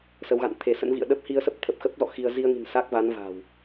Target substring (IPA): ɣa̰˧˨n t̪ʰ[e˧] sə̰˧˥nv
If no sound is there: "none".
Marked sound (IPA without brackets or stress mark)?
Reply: e˧˩